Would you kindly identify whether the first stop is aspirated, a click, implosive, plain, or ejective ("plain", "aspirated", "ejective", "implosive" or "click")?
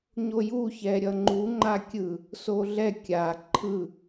click